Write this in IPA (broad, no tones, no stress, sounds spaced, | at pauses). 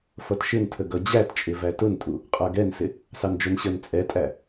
f ʌ t ʃ ɪ n tʰ ə ɡ ʌ d͡ʑ æ t t͡ʃʼ ɪ v æ t ʊ n tʼ u | qʼ ə˞ ɡ ɛ n s ɪ | s ɑ n d͡ʒ ʊ n ɕ ə˞ n t͡sʼ ɛ tʼ æ